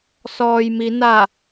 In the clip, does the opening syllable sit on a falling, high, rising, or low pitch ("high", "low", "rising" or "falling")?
low